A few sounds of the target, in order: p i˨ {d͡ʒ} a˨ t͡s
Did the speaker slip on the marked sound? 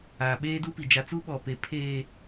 no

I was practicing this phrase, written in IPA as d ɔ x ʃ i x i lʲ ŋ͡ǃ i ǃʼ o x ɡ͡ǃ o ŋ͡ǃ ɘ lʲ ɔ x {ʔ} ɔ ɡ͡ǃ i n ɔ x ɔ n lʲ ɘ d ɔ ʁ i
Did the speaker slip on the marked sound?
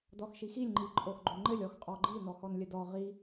yes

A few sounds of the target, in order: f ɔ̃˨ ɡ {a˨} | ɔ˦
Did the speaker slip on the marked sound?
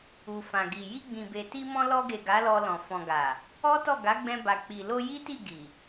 no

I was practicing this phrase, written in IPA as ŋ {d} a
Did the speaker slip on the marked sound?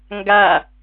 yes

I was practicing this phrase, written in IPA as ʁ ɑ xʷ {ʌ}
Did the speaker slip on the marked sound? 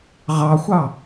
yes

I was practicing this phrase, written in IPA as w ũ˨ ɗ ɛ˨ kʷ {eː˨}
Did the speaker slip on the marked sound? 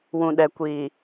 yes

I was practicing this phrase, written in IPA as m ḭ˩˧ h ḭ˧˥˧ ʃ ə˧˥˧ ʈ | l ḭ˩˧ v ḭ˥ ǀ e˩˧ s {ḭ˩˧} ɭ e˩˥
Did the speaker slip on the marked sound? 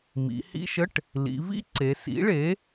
yes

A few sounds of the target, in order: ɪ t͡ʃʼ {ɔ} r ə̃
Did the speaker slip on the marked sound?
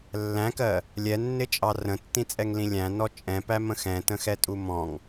yes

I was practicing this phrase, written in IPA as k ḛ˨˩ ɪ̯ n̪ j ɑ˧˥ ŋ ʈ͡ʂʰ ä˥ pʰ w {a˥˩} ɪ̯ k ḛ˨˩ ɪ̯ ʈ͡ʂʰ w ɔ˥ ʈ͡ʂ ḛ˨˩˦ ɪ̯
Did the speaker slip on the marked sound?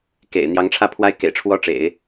yes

